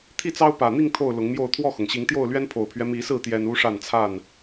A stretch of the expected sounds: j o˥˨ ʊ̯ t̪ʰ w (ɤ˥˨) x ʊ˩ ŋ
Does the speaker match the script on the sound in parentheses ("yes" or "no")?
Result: no